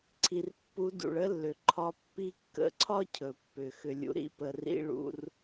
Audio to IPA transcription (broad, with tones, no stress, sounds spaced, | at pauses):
ǀʰ i˩ r pː u˧˥ d ṵ˩ ɭ ə˥ lː ʏ˩ ǃʰ ɒ˧˥ pː i˥ kː ə̰˧ ǀʰ ɒ˥ cʰ ɵ˩ pː ʏ˩ x ʏ˧ lʲ ṵ˧˥ ɾ ḭ˥ p ə˧ r ḭ˥ ɭ ṵ˥ r